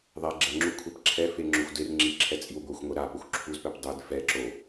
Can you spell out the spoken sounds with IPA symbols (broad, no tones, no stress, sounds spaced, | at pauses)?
ðˤ ɛ ɡ͡ǁ ɛ ŋ͡ǁ u kʷʰ ɛ p ǁʰ ɛ f e ŋ͡ǁ o xʷ d e r ŋ͡ǁ i ǁʰ ɛ t͡sʼ i w ɡʷ ʌ xʷ ŋʷ e ɾ a p o xʷ ǁʰ u z p ɛ p dˤ e d f ɛ ǁ o